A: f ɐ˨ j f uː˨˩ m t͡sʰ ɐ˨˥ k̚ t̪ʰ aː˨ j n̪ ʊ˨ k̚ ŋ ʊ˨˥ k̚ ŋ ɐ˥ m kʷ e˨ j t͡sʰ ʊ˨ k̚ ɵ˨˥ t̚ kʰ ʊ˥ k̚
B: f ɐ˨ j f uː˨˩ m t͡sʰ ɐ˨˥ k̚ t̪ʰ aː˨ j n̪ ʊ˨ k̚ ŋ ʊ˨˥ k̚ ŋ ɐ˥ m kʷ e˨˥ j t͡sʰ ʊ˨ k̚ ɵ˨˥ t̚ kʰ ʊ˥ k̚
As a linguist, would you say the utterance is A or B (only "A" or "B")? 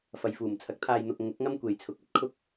A